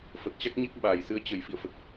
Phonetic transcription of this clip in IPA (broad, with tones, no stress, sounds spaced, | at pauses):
f ə˨˩ t̚ t͡ɕ a˦˥ k̚ ɲ e˦˥ k̚ ɓ aː˧˩ j s ɨ˨˦ ə̯ t͡ɕ ə˧˩ j f ḭ˧˨ ə̯ f ə˨˩ t̚